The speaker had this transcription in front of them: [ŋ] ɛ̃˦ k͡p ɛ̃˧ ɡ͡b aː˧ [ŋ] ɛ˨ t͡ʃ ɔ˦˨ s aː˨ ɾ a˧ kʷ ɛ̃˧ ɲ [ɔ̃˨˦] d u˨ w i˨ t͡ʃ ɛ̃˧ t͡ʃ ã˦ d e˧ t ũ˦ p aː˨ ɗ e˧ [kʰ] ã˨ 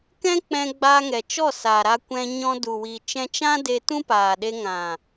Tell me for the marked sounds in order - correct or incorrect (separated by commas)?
incorrect, correct, incorrect, incorrect